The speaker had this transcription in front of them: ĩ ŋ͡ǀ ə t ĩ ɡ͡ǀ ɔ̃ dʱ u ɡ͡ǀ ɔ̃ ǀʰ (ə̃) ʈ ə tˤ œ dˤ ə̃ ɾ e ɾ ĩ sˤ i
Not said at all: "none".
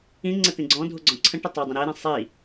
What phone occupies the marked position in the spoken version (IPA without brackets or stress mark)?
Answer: ə̃